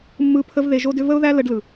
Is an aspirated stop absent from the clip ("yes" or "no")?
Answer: no